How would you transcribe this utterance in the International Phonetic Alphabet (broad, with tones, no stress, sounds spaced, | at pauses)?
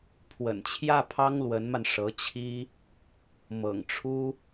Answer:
pʰ w ə̰˨˩ n t͡ɕʰ j ä˥˩ pʰ ɑ˥ ŋ l w ə˧˥ n m a˧ n ʂ ɤ˧˥ t͡ɕʰ i˥ | m ɤ̰˨˩ ŋ ʈ͡ʂʰ u˥